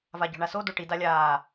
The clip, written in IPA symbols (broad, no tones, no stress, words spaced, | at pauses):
vaɟɔ̤ɳaso doʈi dalʲaː